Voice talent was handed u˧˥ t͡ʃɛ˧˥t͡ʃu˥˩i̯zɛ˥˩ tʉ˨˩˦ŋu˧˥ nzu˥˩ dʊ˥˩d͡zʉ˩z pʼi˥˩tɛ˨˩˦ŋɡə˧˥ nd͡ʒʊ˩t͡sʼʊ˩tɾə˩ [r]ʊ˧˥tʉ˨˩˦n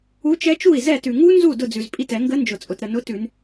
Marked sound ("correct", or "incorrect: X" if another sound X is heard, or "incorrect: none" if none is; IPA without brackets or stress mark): incorrect: n